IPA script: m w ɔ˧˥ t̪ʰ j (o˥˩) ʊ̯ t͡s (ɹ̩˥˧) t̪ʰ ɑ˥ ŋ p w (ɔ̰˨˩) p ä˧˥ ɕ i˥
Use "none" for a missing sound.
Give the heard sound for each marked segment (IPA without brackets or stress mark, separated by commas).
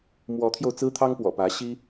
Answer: o˧, ɹ̩˥, ɔ̰˨˩